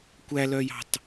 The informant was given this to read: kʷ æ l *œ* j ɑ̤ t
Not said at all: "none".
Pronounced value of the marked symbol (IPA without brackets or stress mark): œ